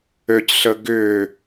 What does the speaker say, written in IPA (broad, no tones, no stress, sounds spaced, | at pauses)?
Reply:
ø c ɬ ə ɡ ʏ